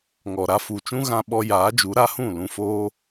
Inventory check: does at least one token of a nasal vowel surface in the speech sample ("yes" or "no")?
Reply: yes